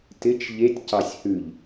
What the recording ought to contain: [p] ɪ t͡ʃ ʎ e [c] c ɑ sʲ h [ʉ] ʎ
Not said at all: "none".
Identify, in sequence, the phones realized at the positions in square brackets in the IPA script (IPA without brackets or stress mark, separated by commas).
t, tʲ, ʉ